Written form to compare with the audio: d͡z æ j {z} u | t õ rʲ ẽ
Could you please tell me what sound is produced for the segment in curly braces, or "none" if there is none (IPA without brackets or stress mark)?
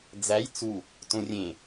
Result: t͡s